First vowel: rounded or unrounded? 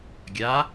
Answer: unrounded